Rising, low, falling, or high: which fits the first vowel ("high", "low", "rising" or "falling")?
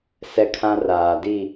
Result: high